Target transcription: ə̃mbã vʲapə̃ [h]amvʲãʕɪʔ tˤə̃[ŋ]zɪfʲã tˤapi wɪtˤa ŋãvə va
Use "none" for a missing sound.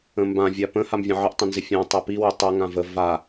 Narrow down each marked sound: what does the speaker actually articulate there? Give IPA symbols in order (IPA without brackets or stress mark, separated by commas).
h, n